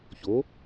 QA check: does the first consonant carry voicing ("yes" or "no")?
no